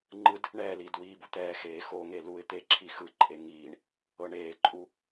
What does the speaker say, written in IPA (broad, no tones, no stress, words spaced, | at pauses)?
ŋ͡ǃɯd | ɳɛːliːd wiːbut̪ɛːxeː xoŋe luɪ̯ t̪e ǁʰixɯǃʼe ŋiːɳ | ɤɳeːǃʼu